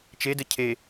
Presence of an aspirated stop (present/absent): present